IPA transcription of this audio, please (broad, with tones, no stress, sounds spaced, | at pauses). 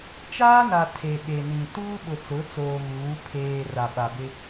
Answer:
t͡ʃ aː˦ n a˨ tʰ e˨ ɓ e˨ n ĩ˨ t uː˦ ɓ ʊ˨ t͡s ʊ˨˦ t͡s oː˨ ɣ uː˨˦ pʰ eː˨ r a˨ ɓ a˨ b ɪ˦